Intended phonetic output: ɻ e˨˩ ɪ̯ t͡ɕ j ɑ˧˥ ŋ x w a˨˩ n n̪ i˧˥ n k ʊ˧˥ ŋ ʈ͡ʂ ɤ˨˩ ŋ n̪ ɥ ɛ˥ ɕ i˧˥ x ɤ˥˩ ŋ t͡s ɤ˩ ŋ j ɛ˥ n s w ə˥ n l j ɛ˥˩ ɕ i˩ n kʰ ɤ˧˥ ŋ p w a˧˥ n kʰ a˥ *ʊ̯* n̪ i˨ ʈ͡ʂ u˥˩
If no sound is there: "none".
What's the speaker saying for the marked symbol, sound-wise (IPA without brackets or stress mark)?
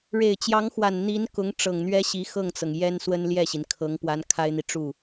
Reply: ɪ̯